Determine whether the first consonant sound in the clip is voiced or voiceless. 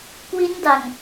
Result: voiceless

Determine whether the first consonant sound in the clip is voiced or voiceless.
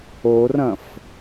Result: voiced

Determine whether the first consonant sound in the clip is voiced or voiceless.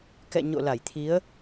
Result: voiceless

